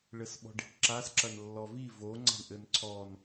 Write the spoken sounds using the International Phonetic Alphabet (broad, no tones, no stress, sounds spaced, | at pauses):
ɭ ɘ s ɓ ɔ̤ ɖ i̤ ʈ ǁ a s ǁ ɐ n lː ɔ v i v o ŋ͡ǀ a̤ ɳ ʔ ɘ n ǀʰ ɔ n